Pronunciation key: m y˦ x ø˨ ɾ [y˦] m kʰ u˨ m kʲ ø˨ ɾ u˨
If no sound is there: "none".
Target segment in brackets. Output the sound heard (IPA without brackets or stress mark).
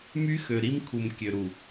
i˦